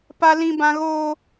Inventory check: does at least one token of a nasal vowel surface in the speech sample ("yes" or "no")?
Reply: yes